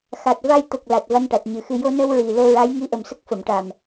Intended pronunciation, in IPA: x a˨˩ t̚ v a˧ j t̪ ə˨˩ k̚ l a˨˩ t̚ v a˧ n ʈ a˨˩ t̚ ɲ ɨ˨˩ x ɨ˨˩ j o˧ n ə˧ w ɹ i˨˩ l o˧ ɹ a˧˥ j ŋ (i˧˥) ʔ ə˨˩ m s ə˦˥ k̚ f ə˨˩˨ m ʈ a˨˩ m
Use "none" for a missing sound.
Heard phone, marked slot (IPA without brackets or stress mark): i˧˥